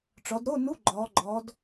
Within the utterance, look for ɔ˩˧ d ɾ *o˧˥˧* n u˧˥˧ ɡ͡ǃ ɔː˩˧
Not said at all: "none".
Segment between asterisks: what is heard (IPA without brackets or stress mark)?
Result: o˧˥˧